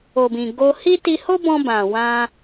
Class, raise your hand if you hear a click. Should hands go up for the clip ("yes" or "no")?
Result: no